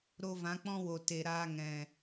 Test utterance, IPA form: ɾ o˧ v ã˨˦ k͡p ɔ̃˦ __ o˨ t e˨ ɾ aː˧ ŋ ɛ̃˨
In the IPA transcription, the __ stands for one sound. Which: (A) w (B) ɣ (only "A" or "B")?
A